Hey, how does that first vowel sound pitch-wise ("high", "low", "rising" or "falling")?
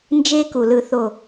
high